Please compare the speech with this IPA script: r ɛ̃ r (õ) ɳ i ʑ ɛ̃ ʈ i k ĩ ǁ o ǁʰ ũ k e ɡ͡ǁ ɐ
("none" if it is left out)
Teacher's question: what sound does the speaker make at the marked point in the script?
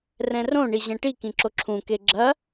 õ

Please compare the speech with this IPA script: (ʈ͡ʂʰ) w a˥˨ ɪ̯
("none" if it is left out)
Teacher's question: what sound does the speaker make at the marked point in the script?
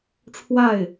ʈ͡ʂʰ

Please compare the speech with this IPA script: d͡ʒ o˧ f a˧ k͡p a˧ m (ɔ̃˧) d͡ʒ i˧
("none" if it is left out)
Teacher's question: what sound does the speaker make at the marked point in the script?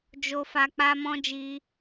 ɔ̃˧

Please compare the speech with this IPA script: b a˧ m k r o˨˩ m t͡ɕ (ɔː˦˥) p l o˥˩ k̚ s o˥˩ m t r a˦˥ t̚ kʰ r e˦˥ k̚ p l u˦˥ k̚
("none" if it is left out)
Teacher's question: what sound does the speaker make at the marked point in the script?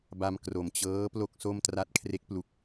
ɤː˦˥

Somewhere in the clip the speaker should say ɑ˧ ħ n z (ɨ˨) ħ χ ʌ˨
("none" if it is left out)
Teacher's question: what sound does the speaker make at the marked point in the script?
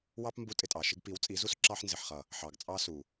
ɪ˨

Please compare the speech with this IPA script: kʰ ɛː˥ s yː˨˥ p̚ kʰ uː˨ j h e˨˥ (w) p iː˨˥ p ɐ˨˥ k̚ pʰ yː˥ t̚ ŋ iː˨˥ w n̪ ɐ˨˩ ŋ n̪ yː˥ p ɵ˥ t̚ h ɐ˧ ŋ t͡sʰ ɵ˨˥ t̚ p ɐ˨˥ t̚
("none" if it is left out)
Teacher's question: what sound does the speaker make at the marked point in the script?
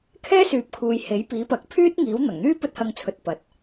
j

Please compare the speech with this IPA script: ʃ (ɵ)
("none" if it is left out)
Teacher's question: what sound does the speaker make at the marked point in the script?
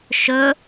ɵ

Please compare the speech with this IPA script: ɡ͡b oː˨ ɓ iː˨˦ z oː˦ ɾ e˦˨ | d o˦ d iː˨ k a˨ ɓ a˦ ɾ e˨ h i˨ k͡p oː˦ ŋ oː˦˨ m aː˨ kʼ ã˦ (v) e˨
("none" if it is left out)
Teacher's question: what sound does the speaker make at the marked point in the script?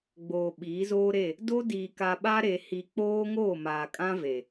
v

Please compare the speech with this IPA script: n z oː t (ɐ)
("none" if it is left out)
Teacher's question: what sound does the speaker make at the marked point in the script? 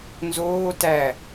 æ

